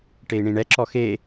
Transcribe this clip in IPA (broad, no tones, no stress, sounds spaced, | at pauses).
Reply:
ʈ e i̯ ɳ ĩ ɳ ɛ ǁ ɔ x e